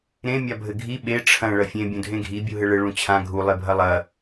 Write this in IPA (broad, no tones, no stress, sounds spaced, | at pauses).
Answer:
ɾ ẽ mʲ a bʱ ɘ ɡʱ i ɓ e ʈ͡ʂʰ ɐ̃ ɭ ɐ fʲ ẽ bʲ ũ dʱ ẽ ɡʱ i bʲ u ɦ ɘ ɭ ɘ ɭ ũ t͡ɕʰ ã ɡʱ u lˠ e bʱ ɐ lˠ ɐ